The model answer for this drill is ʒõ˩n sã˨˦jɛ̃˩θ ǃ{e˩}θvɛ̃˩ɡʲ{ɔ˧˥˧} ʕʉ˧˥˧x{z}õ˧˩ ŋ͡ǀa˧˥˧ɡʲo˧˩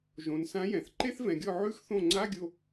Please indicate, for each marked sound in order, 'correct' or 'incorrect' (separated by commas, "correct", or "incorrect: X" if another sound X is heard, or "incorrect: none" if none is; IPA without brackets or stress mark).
incorrect: e˧˥˧, incorrect: ɔ˧˩, incorrect: θ